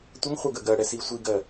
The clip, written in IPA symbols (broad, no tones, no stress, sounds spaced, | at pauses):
tʷ ə ŋ χʷ ɛ ɡ ə ɡ ɜ ɽ ɛ s i sʷ i ɡ ɜ